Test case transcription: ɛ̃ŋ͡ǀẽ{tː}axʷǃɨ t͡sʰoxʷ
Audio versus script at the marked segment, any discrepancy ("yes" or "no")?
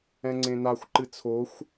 yes